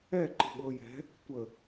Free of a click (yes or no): no